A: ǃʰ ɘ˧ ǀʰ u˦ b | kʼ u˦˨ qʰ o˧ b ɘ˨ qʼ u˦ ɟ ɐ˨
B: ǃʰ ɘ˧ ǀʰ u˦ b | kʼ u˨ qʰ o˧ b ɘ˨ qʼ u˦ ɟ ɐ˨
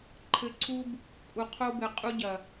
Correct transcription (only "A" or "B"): B